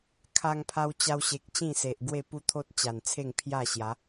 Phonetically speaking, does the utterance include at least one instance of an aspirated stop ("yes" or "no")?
yes